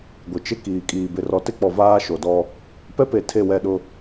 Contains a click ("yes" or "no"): no